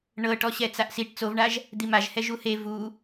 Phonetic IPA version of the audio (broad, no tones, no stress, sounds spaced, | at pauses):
ɳ ɤ ʈ ɔ ɕ ɛ t͡s a ʔ s i ʈ t͡s o v ɳ a ʒ | d̪ i m a ʒ h ɛ ʒ u h e v u